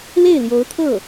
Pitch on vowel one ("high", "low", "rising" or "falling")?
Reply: falling